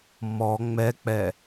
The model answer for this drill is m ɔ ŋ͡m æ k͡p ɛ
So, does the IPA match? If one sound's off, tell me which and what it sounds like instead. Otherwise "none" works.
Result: æ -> ɛ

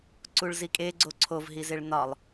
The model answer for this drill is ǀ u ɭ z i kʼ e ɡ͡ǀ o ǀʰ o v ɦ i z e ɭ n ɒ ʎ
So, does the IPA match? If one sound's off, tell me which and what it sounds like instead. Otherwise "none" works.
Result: ʎ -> lˠ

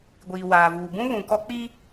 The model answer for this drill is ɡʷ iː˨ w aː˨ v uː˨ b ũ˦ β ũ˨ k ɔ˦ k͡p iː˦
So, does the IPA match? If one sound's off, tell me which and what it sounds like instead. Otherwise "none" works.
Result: none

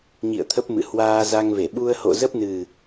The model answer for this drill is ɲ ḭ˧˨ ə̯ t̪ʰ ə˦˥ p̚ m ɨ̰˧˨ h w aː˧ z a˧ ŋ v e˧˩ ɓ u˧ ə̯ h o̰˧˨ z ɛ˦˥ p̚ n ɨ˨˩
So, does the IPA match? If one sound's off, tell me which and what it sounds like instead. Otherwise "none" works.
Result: ɛ˦˥ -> ə˦˥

